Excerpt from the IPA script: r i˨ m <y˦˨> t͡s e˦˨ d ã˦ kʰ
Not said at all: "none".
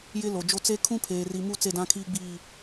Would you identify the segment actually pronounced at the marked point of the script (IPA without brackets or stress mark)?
u˦˨